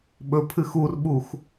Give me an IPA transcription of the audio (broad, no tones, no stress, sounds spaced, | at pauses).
ɓ ɵ pʰ ɨ x u r ɓ u x